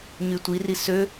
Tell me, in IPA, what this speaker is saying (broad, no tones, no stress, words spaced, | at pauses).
ɲytʷiri sø